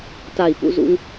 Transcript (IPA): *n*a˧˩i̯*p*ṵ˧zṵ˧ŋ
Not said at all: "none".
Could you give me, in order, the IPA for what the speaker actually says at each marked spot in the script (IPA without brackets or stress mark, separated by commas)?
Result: t, p